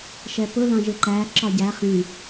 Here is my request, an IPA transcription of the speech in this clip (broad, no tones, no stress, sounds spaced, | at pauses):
ʃ ɛ p ʊ l ɑ̃ ʒ ɪ ǃ æ ǁ ɒ ɟ æ χ ĩ